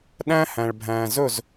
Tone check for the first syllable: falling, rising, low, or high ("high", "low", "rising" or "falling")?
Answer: high